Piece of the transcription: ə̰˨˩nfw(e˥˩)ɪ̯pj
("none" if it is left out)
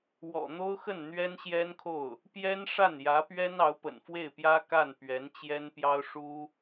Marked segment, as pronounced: e˥˩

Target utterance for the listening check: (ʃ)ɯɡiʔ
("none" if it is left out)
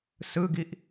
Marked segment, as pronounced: s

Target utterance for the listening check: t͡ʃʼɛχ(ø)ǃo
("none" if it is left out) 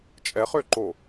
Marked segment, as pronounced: ø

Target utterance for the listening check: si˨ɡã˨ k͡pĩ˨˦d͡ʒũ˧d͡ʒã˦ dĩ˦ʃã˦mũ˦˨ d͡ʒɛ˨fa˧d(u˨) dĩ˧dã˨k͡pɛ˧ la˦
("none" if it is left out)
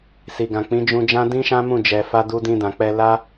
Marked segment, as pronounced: u˧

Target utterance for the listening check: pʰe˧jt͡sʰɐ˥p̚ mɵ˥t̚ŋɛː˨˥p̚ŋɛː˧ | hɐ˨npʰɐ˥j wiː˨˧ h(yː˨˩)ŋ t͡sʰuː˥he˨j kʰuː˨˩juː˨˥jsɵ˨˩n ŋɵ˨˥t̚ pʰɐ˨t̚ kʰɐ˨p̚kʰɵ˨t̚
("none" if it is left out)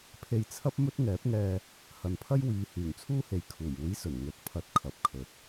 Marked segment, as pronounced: yː˨˩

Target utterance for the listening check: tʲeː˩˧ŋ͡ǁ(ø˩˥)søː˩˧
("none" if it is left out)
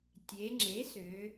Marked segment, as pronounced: e˩˥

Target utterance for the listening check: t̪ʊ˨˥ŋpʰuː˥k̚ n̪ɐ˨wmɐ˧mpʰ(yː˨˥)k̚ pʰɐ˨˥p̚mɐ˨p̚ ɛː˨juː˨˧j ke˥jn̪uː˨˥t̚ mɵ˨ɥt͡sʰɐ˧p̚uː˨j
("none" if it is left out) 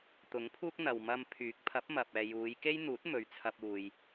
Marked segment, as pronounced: yː˨˥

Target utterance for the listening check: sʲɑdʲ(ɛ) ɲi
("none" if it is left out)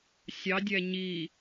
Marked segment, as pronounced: ɛ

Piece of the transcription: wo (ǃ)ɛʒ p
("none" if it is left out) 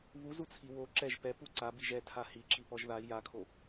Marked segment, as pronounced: ǁ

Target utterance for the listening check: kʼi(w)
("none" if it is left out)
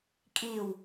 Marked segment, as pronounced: w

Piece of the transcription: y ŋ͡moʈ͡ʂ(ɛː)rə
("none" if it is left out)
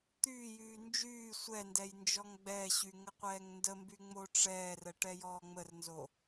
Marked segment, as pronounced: ɛː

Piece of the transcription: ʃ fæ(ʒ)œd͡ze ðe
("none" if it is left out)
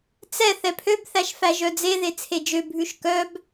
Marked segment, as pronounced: ʒ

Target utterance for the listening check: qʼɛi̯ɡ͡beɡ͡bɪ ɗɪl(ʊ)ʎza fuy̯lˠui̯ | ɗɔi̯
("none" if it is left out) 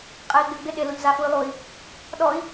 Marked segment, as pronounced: ʊ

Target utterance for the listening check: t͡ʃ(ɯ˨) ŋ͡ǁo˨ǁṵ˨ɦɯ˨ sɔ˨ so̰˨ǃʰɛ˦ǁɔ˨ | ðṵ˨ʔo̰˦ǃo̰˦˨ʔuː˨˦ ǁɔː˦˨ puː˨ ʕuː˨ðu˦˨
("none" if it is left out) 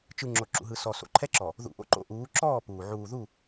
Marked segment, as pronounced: ɯ˨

